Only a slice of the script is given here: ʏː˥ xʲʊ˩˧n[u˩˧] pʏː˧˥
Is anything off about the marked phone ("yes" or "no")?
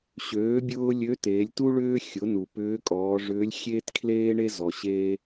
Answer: yes